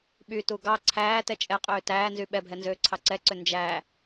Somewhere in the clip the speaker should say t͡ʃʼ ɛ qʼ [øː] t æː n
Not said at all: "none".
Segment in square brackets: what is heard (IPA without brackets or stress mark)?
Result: øː